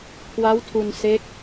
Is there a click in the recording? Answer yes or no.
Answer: no